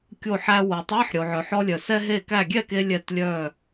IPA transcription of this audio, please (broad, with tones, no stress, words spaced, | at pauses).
kʲo˧˩ħæ˧ wo˩tˤæ˧˥˧ħ ɾʲo˩ʕœ˩ħɔ˧lʲœ˩ sɛ˧ɦe˧˩kæ˧˩ ɡʲɛ˥˩ke˧ lʲɛ˧˩tlʲœ˧˩